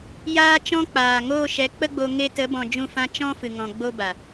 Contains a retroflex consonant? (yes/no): no